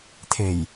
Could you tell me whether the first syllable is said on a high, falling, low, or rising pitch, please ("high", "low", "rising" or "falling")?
low